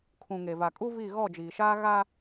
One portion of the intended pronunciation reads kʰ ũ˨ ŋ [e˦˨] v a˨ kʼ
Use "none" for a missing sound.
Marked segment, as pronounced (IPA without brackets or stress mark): e˨